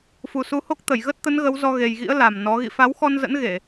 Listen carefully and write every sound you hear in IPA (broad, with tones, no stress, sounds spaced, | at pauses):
f u˨˩ s u˨˦ h o˦˥ k̚ t̪ ə˧˩ j ɣ ə˦˥ t̚ t̪ ə˨˦ n ɣ ə˨˦ w z ɔ˧ ɣ e˨˩ j ɣ ḭ˧˥ ə̯ l a˨˩ m n ɔ˨˦ ɣ ḭ˧˨ f a˨˦ w x ɔ˧ n z ə̰˧˥ n ɣ e˧˩˨